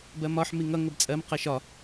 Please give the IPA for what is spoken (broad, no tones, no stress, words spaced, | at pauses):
bɜmɒħ miŋʌ ŋəbt͡sʼɜm qɜʃɒ